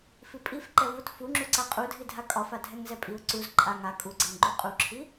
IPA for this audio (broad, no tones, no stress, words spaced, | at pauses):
fipʼif ǃɛvut fuŋ͡ǁuǀa qʼudʱidʱa kʼɒfa dʱɛŋzɛpʼiʊ̯ ǀuz ǃʼa ŋa kʼuɡ͡ǀɛŋɡ͡ǃu qʼuǁʰi